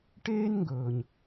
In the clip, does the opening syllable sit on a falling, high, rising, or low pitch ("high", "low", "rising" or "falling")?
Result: high